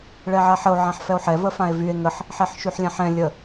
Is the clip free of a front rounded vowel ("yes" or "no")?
no